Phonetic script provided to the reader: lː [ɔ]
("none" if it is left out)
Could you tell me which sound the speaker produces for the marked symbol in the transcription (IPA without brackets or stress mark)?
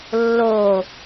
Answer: o